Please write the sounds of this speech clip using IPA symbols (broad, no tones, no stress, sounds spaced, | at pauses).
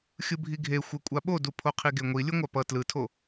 xʲ ɯ bʱ i ɡʱ e xʷ ɛ kʷʼ a ɓ o d u pʰ o qʰ i ɡ e ŋʷ i lʲ ɯ ŋʷ a p ʌ t l ɯ tʰ o